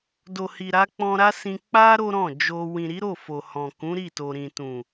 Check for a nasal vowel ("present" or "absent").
present